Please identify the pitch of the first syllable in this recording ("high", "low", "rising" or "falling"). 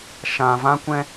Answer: low